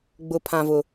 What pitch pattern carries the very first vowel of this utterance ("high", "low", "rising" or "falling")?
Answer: low